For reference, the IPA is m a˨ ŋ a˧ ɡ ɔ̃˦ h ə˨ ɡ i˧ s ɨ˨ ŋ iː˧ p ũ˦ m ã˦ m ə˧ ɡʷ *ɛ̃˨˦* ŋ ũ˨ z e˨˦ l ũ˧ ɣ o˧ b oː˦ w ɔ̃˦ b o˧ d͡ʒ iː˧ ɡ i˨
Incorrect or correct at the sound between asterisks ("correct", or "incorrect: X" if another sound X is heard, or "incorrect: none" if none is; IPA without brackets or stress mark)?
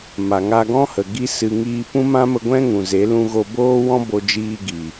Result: incorrect: ɛ̃˦